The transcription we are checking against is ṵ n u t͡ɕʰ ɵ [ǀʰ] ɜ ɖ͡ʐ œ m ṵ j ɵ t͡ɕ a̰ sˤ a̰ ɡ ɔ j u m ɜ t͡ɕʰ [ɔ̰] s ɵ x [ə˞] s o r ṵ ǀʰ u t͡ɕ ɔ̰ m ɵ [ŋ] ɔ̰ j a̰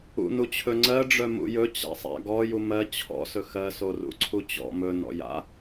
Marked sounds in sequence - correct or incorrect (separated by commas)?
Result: incorrect, correct, incorrect, incorrect